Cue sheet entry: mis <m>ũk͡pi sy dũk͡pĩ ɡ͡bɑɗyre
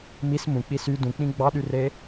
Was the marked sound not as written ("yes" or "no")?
no